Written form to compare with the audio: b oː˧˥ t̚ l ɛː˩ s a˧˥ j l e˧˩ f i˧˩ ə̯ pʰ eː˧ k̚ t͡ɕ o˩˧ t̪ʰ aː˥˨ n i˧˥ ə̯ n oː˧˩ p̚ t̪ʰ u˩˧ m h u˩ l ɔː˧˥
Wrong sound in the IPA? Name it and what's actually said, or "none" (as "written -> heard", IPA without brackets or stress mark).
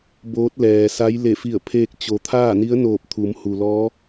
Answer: none